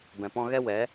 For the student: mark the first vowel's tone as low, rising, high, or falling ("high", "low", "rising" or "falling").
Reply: low